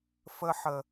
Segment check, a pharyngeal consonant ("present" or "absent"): present